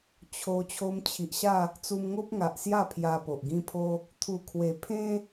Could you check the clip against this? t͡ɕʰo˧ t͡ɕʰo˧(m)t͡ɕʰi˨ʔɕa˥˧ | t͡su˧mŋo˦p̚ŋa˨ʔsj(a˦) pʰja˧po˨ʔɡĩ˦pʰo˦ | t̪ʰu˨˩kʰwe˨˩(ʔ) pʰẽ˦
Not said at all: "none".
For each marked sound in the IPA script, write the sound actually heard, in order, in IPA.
m, a˥˧, none

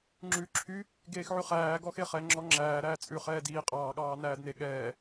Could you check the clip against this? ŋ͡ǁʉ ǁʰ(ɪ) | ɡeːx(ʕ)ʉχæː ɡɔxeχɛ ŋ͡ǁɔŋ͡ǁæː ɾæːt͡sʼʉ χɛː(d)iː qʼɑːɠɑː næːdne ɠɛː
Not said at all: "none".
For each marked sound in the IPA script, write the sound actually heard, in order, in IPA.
y, ʕ, d

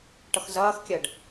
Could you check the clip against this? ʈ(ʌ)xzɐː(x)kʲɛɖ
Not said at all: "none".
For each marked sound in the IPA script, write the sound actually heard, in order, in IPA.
ʌ, x

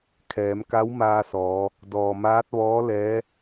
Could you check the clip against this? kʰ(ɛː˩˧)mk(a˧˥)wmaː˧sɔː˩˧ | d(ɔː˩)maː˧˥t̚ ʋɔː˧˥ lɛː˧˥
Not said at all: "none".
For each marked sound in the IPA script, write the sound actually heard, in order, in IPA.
ɛː˩˧, a˧˥, ɔː˩

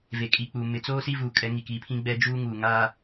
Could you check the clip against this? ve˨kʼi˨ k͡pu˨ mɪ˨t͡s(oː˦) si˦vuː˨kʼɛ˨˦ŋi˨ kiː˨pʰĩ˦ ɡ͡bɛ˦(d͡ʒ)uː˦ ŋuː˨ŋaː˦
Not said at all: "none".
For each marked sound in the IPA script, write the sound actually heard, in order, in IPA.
oː˦, d͡ʒ

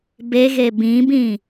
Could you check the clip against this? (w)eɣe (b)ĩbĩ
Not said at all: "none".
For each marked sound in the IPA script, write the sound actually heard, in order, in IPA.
b, b

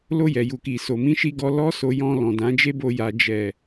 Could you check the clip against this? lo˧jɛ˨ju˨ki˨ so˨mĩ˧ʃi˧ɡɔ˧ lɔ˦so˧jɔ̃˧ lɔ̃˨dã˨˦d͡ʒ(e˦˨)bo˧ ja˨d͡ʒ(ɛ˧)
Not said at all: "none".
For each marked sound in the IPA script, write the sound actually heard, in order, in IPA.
e˦, ɛ˨

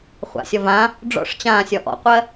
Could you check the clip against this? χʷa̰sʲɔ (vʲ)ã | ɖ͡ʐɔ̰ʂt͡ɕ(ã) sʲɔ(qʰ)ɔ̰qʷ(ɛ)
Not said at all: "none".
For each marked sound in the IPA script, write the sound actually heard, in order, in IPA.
v, ãː, ʔ, ɜ

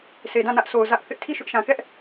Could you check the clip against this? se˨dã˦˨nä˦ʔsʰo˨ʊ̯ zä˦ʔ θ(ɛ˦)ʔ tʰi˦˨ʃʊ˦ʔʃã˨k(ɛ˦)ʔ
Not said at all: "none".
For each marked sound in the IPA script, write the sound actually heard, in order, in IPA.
ɪ˦, ɛ˦

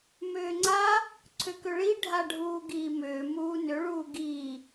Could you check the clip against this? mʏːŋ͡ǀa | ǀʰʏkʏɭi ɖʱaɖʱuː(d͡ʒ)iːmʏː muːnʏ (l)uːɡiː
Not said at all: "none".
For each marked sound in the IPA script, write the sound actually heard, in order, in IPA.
ɡ, ɭ

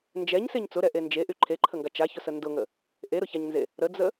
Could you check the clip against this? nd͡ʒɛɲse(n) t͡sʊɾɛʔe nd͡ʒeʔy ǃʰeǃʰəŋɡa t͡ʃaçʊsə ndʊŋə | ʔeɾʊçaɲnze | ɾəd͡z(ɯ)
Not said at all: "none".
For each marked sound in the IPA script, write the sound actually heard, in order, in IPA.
ɲ, ə

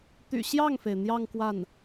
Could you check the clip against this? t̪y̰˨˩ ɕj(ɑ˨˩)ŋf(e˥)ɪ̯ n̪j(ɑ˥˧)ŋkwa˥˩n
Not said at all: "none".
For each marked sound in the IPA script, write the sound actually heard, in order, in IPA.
ɑ˥˩, e˩, ɑ˥˧

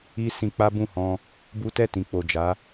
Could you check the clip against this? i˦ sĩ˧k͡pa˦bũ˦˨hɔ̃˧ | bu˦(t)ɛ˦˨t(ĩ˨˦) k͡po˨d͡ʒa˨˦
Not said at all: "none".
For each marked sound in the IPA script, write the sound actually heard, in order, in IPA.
t, ĩ˨

